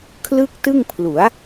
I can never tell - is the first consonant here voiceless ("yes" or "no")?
yes